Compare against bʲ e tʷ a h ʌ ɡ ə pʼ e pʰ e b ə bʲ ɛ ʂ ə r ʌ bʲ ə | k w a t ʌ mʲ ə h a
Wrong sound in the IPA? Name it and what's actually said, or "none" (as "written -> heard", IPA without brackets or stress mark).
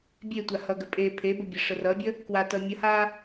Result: none